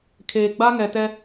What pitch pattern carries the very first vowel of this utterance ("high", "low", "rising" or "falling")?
low